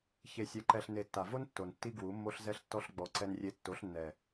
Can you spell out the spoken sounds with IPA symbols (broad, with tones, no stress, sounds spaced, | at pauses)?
ç e˧ sʲ ɛ˧ ǃ ɛ˧ ɬ n e˨ tː a˨ v o˦ n tː o˨ n tː i˦ ɡ w u˨˦ mː o˦ ɬ z ɛ˦ ɬ tː ɔ˦ ɬ ɡ͡b ɔ˨ ǀ ɛ˧ n rʲ e˧ tː o˨˦ ɬ nː ɛ˨